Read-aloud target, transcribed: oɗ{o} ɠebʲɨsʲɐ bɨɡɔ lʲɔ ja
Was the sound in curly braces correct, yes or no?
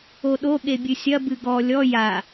yes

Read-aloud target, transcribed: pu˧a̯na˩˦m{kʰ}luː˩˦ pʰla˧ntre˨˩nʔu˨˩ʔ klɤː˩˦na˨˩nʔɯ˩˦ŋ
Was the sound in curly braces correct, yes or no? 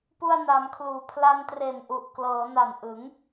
yes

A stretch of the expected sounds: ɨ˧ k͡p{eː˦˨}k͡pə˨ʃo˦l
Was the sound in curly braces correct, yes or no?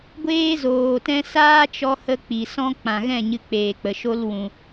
no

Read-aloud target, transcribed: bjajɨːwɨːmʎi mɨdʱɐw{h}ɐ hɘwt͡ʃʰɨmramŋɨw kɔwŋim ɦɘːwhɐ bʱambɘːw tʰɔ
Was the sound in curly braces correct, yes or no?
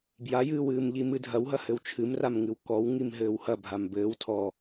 no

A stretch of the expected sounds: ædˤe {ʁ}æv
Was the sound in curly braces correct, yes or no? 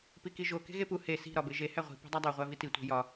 no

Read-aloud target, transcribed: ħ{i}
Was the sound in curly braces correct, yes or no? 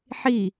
yes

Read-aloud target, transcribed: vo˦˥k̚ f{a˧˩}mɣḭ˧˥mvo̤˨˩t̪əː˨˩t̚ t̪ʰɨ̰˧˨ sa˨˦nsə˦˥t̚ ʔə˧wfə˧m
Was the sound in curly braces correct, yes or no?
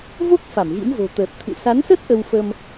yes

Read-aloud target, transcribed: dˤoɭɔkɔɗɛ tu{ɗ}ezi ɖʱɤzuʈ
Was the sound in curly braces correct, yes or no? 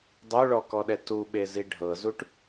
no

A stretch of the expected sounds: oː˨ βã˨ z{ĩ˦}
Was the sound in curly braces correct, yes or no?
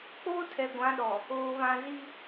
no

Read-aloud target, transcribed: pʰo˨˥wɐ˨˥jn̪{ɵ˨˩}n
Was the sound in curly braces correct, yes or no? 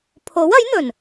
yes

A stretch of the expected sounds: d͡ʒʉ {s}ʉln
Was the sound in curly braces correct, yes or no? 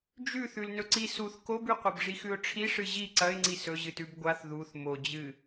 no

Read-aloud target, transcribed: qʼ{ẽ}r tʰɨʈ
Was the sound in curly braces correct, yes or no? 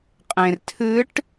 yes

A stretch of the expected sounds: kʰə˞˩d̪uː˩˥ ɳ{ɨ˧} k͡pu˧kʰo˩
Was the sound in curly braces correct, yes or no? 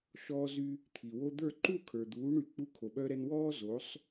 no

